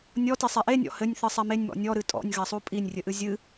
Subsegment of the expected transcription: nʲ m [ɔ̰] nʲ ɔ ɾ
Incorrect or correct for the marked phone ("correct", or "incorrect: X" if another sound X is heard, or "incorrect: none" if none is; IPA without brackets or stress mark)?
correct